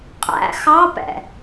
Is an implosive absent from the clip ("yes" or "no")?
yes